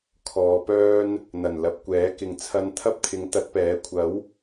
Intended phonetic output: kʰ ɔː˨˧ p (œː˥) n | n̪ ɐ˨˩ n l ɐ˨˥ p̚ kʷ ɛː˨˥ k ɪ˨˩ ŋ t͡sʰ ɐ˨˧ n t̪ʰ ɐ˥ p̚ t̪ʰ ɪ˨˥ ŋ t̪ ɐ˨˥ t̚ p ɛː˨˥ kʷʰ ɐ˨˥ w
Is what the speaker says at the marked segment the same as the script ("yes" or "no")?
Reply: yes